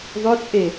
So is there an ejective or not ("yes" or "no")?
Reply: yes